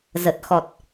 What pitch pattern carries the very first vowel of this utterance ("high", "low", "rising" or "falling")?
low